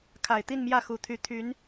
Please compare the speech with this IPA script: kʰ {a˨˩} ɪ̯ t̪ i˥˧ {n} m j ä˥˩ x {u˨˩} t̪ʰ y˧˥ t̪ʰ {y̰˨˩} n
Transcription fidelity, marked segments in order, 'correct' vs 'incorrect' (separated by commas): correct, correct, correct, incorrect